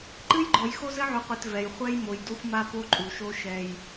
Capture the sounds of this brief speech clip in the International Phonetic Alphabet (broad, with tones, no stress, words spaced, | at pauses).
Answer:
ǃɨ˦jɡ͡ǃɔ˨j xo˦zɘ˦ʕu˨qʷi˨t vɛ˨j χʷɛ˦jmo˨j do˦xʷma˦ po˦ǃʼu˨ʃo˦ ʃɛ˦j